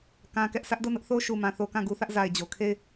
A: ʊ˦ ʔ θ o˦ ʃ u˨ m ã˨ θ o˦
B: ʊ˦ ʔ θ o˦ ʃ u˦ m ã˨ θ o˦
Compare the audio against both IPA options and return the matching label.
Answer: A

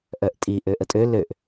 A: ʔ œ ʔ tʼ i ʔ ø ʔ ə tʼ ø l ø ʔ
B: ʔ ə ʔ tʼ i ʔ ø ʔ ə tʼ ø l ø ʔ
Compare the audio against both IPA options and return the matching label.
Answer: A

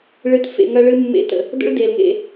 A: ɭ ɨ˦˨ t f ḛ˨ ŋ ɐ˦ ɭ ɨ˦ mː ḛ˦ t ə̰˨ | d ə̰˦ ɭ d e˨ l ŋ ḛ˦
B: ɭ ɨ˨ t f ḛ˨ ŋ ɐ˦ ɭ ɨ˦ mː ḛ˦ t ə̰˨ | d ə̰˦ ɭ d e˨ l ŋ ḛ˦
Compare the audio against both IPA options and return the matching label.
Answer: B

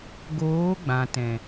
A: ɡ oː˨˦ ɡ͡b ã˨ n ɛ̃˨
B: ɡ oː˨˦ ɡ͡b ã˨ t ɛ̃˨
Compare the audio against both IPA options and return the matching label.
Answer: B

